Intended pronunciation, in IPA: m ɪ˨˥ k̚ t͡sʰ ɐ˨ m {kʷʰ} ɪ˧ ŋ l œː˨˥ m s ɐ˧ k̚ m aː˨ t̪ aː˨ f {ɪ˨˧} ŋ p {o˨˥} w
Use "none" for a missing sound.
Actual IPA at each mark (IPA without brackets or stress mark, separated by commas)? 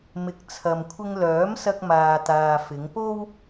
kʷʰ, ɪ˨˧, o˥